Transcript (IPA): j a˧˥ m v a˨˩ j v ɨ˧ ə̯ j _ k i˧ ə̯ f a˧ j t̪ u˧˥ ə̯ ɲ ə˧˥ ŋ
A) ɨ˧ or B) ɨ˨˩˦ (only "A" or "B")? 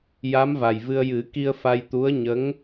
B